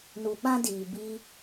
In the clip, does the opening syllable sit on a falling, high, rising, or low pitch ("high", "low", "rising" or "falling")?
low